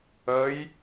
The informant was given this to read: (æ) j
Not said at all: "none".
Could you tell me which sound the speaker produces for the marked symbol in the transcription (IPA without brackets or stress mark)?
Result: ə